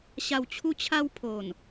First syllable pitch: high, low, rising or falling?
low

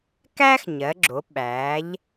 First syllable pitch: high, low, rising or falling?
high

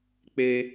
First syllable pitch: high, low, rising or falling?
high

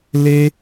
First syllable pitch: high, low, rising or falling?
high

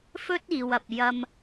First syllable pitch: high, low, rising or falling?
high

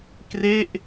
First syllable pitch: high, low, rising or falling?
falling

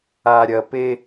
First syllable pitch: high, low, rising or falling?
low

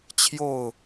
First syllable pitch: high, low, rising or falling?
falling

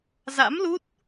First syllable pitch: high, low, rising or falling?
rising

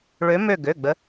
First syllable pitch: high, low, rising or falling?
rising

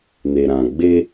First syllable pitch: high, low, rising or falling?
low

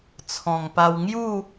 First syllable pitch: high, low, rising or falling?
low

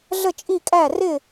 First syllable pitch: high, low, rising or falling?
falling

